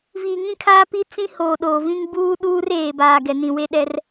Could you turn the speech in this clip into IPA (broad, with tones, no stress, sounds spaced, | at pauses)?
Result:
v iː˨ ŋ ĩ˦ kʰ aː˦ p i˦ t͡s ĩ˦ h oː˨ ɗ oː˨ v ĩ˦ ŋ b uː˦ ɗ uː˦ r eː˨ b aː˨ ɡ ɛ˨ n ĩ˨ w e˦ ɗ ɛ˦ r